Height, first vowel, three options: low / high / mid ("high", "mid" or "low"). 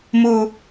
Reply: high